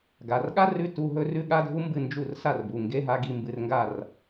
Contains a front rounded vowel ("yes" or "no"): no